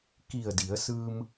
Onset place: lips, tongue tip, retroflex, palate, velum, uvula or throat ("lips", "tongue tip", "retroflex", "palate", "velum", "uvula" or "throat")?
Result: velum